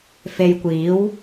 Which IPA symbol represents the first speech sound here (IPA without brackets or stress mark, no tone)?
f